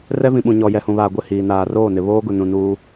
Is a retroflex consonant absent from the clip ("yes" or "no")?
yes